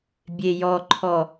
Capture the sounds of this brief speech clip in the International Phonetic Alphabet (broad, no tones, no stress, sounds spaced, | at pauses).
bʲ e j ɔ ǃʰ ɔ